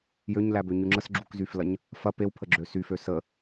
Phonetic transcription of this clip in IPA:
jøɲlæbøɲy ŋ͡ǁəsɡ͡ǁukzyflɐɲ | fɐ pewpʰəɡ͡ǁø syfø sə

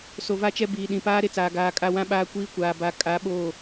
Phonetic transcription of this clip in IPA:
so˨va˦t͡ʃɛ˦biː˨ ɗĩ˨paː˦ɾe˦t͡saː˨ ɡaː˨ kʼa˦˨wã˦ ɓaː˦kʷiː˦kʷaː˨ ba˨˦ kʼa˨˦ɓoː˦˨

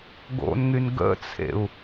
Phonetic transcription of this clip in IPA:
ɡo̰nŋyn ɡə̰t͡sʰḛu̯

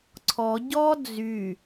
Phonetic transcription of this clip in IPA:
ǀʰɔ ɟɔ d͡zy

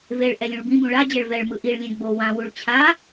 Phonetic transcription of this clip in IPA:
veɭ ʔɛlʲũɭbĩbũ ɭad͡ʑɛɭ vɛɭmɯ ʔiɭlʲɛ̃ ɡ͡bo wãwuɭ t͡ɕʰa

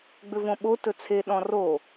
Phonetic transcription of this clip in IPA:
ɡ͡bʏvõɓo tɵt͡sʰe ɗɔ̃ro

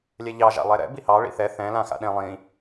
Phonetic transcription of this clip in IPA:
lʲɛʎɑ ʒa̰lˠɛɾɛ̰ bihɑ ɭḭθɛ θɛ̃ lãxa̰ɗẽ lˠĩ

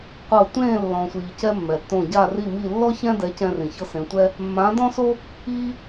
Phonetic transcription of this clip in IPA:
qʷɤ˥˧ tʷẽː˥˧ lːɔ̃˧sʷiː˧cɛ˥ mːɛ˧tːõ˥˧ ɟa˥˧ri˥˧mi˥˧ lːɔ˥çɛ̃˥dɛ˧˥ cɛ̃˥rĩ˧çɤ˥sẽ˧˥ tʷɛ˥ | mːã˧˥dɔ̃˥so˥ | iː˥

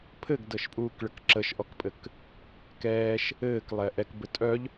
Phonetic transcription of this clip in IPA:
pʰɘɡdɤʃpʼuːkɭək ǁəʃʔɔkpʼɘk | kɛːʃ | ɘːklˠɛ ʔɛkbɘ tʼœʎ

